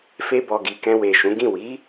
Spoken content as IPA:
fe˧bɔ˨ɡi˨ kɛ̃˧we˨ʃũ˨˦ɡĩ˦˨ wi˨˦

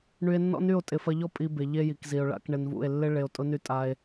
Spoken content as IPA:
ɳy˧e̯nːɔ̰˦ny˦˨o̯ tʼɪ˨fɐ˧ʎɔ˦ pʼi˧be˨ ʎe˧ji˨kzi˨o̯ɭa̰˧k ɳɪ˧nvṵ˦˨e̯ lːɪ˦ ɭe˧o̯tʼʊ˦ny˦ tʼa˦e̯

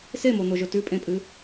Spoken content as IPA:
semon̪oʒɵ tʉpʼẽpʼɨ

